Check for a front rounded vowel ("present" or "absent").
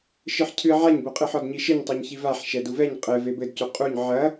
absent